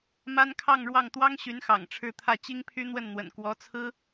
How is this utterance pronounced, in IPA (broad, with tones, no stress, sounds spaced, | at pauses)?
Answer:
m a˥ n kʰ ɑ˥˧ ŋ ɻ w ɑ˥˩ ŋ t̪ w ɑ˥ ŋ ɕ y˧˥ n x ɑ̰˨˩ ŋ ʈ͡ʂʰ ɻ̩˥˧ t̪ʰ ä˥˩ t͡ɕ i˥ ŋ pʰ y˥ n̪ w ə˥˩ n n̪ w ə̰˨˩ n k w ɔ˧˥ t͡sʰ ɹ̩˥